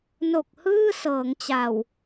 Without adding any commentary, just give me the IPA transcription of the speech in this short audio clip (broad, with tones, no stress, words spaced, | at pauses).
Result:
no˨˩k̚hɯː˥˩ sɤː˩˦ŋt͡ɕa˨˩w